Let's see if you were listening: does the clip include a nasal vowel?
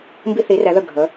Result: no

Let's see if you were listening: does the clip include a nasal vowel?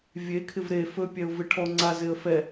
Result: no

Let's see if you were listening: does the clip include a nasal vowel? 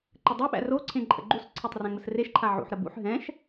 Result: yes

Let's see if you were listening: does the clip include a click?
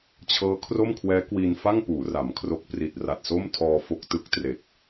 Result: no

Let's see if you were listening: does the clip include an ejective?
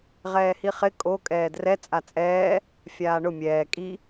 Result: yes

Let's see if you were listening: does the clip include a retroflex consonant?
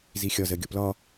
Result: no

